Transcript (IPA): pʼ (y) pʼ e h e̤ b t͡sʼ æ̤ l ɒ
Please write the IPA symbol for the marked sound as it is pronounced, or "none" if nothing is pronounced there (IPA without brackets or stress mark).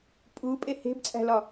u